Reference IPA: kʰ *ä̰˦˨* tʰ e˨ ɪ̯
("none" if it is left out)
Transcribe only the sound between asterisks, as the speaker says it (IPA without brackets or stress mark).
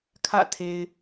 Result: ä̰˦˨